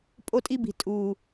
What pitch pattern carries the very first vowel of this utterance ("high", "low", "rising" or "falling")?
high